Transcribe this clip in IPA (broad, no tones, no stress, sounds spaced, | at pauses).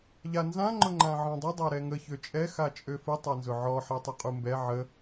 ʎ a n z ã ŋ͡ǃ ʊ ŋ͡ǃ ã ʕ ɔ̃ dˤ ə dˤ a ɾ ɛ ŋ ə ç ø t͡ʃʼ ɛ x a t͡ʃʼ ø f ə tˤ a n z ʊ ʕ ɔ ħ ɛ tˤ ʊ qʼ u m b ɛ ʕ ə